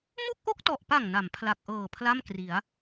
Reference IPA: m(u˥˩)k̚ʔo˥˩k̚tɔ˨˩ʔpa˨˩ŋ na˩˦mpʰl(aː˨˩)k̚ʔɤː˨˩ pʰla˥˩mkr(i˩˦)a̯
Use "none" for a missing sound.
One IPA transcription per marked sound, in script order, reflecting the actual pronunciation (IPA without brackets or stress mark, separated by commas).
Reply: u˥˩, a˨˩, i˩˦